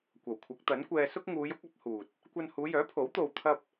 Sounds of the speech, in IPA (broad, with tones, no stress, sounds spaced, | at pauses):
kʷ ɐ˨˩ w kʷʰ ɐ˨˥ k̚ t̪ ɐ˨˥ n kʷ ɛː˧ s ʊ˥ k̚ ŋ uː˨˧ j ʊ˨˥ k̚ ɐ˨˥ p̚ h uː˨ t̚ | kʷ ɐ˧ n h uː˨˧ j œː˨˥ pʰ o˨˥ w t̪ o˧ w t̪ʰ ɐ˥ p̚